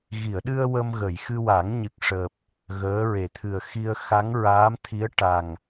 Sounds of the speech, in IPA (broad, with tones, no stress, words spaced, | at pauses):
ɣi˨˩˨ə̯ɗɨ˧ə̯ wə˧mɣə˨˩˨j xɨ˧wa˨˩˦ŋɲɨ˨˩k̚ʂəː˨˩p̚ | ɣəː˧˥ɹe˨˩t̪ʰɨ˨˩ə̯ xi˧ə̯xa˧˥ŋɹaː˧˥mt̪ʰi˧˥ə̯ ʈa˨˩ŋ